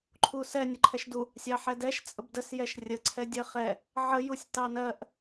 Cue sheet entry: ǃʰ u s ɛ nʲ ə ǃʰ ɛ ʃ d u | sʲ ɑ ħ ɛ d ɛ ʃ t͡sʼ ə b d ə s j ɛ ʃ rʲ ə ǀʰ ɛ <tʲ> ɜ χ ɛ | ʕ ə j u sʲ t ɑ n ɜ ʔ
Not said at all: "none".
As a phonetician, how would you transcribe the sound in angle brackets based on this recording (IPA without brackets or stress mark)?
dʲ